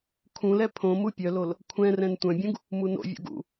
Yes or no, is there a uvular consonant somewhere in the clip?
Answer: no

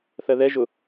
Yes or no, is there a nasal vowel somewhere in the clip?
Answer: no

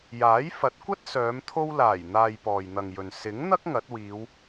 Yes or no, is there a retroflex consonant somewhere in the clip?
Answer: no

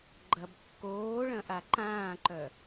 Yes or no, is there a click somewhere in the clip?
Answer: yes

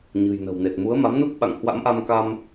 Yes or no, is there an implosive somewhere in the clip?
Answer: yes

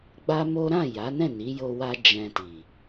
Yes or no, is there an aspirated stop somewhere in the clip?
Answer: no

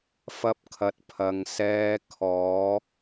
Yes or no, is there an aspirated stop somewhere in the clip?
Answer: yes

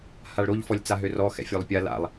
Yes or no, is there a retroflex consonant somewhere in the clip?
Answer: yes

